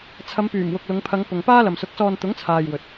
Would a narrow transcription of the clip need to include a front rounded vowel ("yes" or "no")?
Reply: yes